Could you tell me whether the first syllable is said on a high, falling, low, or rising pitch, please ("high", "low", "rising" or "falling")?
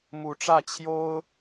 rising